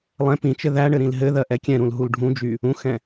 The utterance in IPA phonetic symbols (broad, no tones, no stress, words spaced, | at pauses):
lˠɛ̃ pĩt͡ʃɘ ðæɳɘ ɾĩlɦɘðɜ ʔɛkʲɛ̃ɾũl ɦulɖʱũd͡ʒy | ũxɛ̃